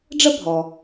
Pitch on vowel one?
high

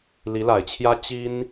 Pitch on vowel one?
rising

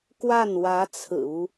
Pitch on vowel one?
falling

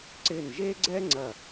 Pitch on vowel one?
falling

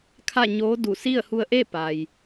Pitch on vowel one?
falling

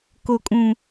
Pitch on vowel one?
low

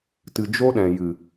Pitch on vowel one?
low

